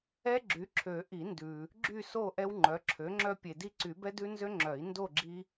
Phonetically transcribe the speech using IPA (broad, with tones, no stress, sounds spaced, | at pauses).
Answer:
ɛ˦ ɡ͡ǁ y˩˥ ǁʰ ø˨˩˦ ʔ i˨˩˦ n d ʉ˨ | ɡ͡ǁ y˥˨ s o˥˨ ʔ ɛ˦ w ŋ͡ǃ œ˩˥ ǁʰ ø˩˥ ŋ͡ǁ œ˦ pʲ e˨ d i˦ ǀ y˨˩˦ b ɛ˦ d ʉ˦ n z ø˦ ŋ͡ǁ œ˨˩˦ i̯ n d o˥˨ ɡ͡ǁ i˦